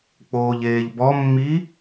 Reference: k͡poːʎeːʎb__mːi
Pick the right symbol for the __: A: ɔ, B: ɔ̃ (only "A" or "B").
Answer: A